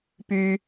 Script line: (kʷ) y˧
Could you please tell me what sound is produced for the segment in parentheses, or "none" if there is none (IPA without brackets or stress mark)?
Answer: p